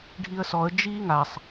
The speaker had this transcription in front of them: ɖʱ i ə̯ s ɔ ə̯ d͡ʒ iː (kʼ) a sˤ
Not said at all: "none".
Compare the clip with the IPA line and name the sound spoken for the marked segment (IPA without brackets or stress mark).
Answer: ŋ